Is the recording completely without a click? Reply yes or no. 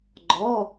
no